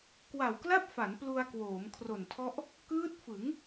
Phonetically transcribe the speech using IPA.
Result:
k w a˨˩ w k l a˥˩ p̚ f a˩˦ n p l u˧ a̯ k w oː˩˦ m kʰ r o˨˩ n tʰ ɔ˦˥ ʔ | k ɯː˦˥ t̚ f ɯ˩˦ ŋ

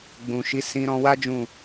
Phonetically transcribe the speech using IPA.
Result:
ɡ͡b ũ˨ ʃ i˨˦ s ĩ˧ ɾ ɔ̃˧ w a˦ d͡ʒ ũ˦˨

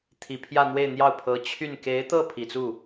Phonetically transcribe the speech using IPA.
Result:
t̪ʰ i˨˩ pʰ j ä˥˧ n̪ w e˥˧ ɪ̯ n̪ j ɑ˥˩ ʊ̯ pʰ ɤ˧˥ t͡ɕʰ y˥˩ n k e˧˥ ɪ̯ t̪ ɤ˥˩ pʰ i˨˩ t͡s u˥˩

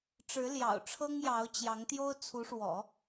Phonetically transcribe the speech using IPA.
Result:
ʈ͡ʂ ɻ̩˧˥ l j ɑ̰˨˩ ʊ̯ ʈ͡ʂʰ ɤ˥ ŋ j ɑ˧˥ ʊ̯ t͡ɕ j ɑ˧˥ ŋ t̪ j o˥ ʊ̯ t͡sʰ u˧˥ ʂ w ɔ̰˨˩˦

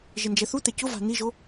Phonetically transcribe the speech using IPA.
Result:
ʒ ɪ n d͡ʒ ɛ θ u t̪ ɛ c ʊ v a̤ n i ʒ o

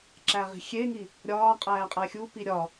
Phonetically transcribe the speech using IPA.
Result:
ǁ æ ʁ i̤ xʲ e ŋ i | ɾʲ ɒː qʼ æː qʼ æ xʲ u p i ɾʲ ɒ

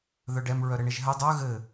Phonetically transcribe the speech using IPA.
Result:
ð œ ɖ ɛ m ɹ œ ɾ ɘ ɳ e ʒ ɦ ɘ dˤ œ ɣ ɘ

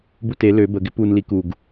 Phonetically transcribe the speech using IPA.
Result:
b u t e l ø b ə ɡ ɪ p u n l i k u ɡ

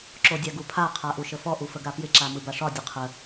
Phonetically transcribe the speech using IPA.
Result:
ǁ o dʲ a ɡ u pʰ a qʰ a ʔ u ʃ ə f ɔ ʔ u f ə ɡ a p j ɪ ǁ a m ɯ b a ʂ ɒ dʲ ə qʰ ə

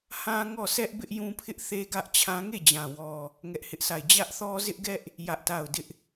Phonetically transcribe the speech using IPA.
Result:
h ã˦ ŋ ɔ˦˨ s ɛ˦ ʔ b ɪ˦ ʔ j ũ˦ pʰ ɪ˦ ʔ θ e˦ ɡ ä˦ ʔ t͡ɕʰ ã˦ ŋ e˦˨ d͡ʑ ã˨ w ɔ˨ | ŋ ɛ˦ ʔ h ɪ˦ ʔ s a˦˨ ɪ̯ d͡ʑ ä˦ ʔ θ ɔ˦ z ɪ˦ ʔ ɡ ɛ˦ ʔ | j ä˦ ʔ t a˦˨ ʊ̯ d ɪ˦ ʔ

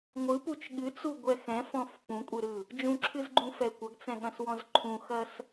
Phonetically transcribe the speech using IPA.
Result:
ŋʷ ɯ p u t͡ʃ ɠ ɨ t͡s u ɡʷ ɛ x ɛ̃ f ɔ̃ f p ũ kʷʼ ɨ ɾ ɯ | d͡ʒ ũ ǁʰ ɨ z ɡ͡ǃ ũ f ɛ kʷ ɐ ɡ t͡s ɛ̃ ɠ ɐ̃ s w ɔ̃ z ǃʰ ũ x ɐ s

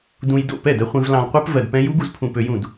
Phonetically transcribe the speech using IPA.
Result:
d ũ˧ j d o̰˥˩ p ɛ˥˩ d ɜ˧ χʷ ĩ˧ v l ɑ̃˧ l qʷ ɛ˦˥ p v ɜ˧ d p ɛ̃˦˥ j u˦˥ ɡ u˧ z pʰ ũ˧ p ø˧ j ũ˥˩ d

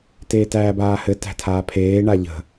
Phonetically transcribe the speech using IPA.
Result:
t eː t æː b aː h ɘ t æ̤ tʰ aː pʰ eː ɳ a ʎ ə̤

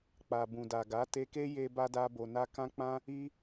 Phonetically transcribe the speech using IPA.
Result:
k͡p a˨ b ũ˨ d a˨ ɡ a˨˦ t e˧ k e˦ j e˧ b a˧ d a˧ b o˨ n a˧ k ã˦ k͡p ã˦ | i˧

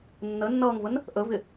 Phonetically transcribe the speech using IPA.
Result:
nː ə nː ʌː ŋ v ə n | ʔ ə v ɪ

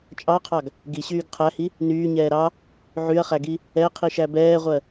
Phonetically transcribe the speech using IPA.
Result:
t͡ʃʼ ɑ qʰ ɑ ɡ | ɡ i ɕ yː ɡ qʰ æ h i | n yː ɲ ɛː ɾ ɑ | ʕ y ɐ̯ χ æ ɡ i | ɛ qʰ i ʃ æ b ɛː ʁʷ ɜ

